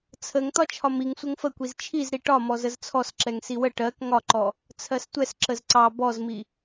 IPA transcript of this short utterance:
t͡sʰəŋ t̪ɒt͡ʃʰɒmiŋ sʷəŋfəkʷiz t͡ʃʰizɾi ʈɒ mɔzəzt͡sʰɔsǁɛŋ siwə ʈɜk ŋɒǃɔ | t͡sʰɜstʷɛs ǁəzǀɑ bɔzmi

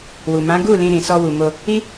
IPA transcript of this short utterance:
wu˨mã˨˦ ɡu˦˨ lĩ˧ɾĩ˨sɔ˧ wu˨mo˧ | i˦

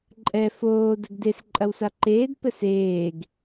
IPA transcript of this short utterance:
ǃʼɛ foː dɘɡdes ǃʼɐwsaǃeːd pɘseːɡ

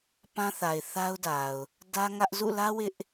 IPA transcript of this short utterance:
pã˦θa˨ɪ̯θa˦ʊ̯ da˨ʊ̯ | dä˦ŋä˦ʔ zṵ˦˨lä˦ wɪ˦ʔ

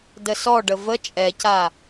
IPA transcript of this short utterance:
dəsɔɖə və t͡ʃʼɛca

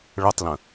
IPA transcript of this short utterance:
ɭɤtˤlə̃

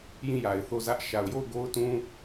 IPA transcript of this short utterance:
jĩ˦˨ja˨ɪ̯ θo˦˨zä˦ʔ ʃa˨ʊ̯jo˦˨ʊ̯ ɡo˦ʊ̯tũ˦

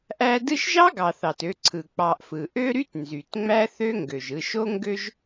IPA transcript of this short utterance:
ʔæ˦ dɯ˦ʃʒɑ˥ ɡɑ˨θɑ˩t ø˨ ǀʰɯ˩k͡pɑ˨ʔfɯ˩ ʔø˥ ɾy˥tnzy˩t ŋ͡mæ˥θø˥ ŋɡø˩ʒɯ˨ ʃo˥ŋɡø˥ʒ

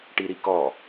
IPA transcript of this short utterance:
ʈiɾikɔ

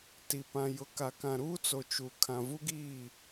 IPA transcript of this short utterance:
ti˨pã˨ jʊ˨ka˨kã˨ɾuː˦ t͡so˨t͡ʃu˨ kʰã˨vu˦ɡiː˦˨

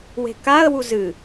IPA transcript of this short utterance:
we̤kaə̯wu zɨ

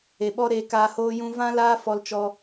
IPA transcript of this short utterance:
e˨ɓɔ˦ ɾeː˧kaː˧hoː˦jũ˦ vã˦laː˦ fɔ˧lt͡ʃɔ˧

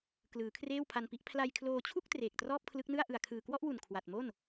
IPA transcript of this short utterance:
klɯː˩˦kʰreː˥˩wpʰa˧npi˦˥ʔ pʰla˧jkʰloː˧t͡ɕʰu˥˩k̚ treː˨˩k̚trɔː˥˩p̚kʰlɯ˦˥k̚nɯ˥˩a̯ ʔɯ˨˩a̯kʰɯː˨˩kwɔ˥˩ʔwu˨˩n kʰwa˨˩t̚mo˥˩n

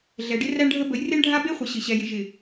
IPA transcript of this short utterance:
ɮɛ˨ɖɪ˦ ræ˦ɳɖʱə˦ bə˨˦jre˦ɳɖʱa˦ be˦ χʷə˨ɕɪ˨ɕɛ˨jɪ˨ ʒɪ˨

